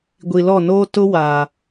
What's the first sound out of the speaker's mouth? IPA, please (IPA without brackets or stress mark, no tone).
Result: ɡʷ